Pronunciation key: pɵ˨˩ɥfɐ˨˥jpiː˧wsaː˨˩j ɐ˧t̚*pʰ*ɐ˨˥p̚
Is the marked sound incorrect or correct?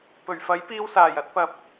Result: incorrect